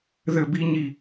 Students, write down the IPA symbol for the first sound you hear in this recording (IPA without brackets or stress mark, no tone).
ð